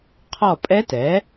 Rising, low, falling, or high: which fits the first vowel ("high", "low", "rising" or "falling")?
falling